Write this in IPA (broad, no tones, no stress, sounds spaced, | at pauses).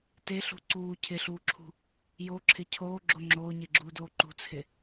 t e ɬ ṳ ǀ uː cʰ ɪ ɬ uː ǁʰ ṳ | j o ǁʰ ɪ cʰ oː ɡ͡ǁ o ŋ͡ǁ oː ɲ e ɡ͡ǁ uː d oː ǃ ṳ t͡sʰ ɪ